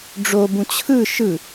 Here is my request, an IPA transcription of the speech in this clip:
ɖ͡ʐobũ t͡ɕʰɯ ʃɯ

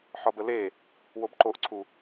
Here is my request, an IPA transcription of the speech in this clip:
ħɒbəle | wobǃoʔǀʰu

